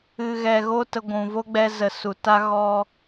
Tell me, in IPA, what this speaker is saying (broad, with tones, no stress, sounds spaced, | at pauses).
ɨ˨ ɣ ɛ˨ ɣ o˧ t ə˧ ɡʷ ũ˨ v o˦ ɡ͡b ɛ˧ z ə˨ s u˨ t a˦ ɣ ɔ˧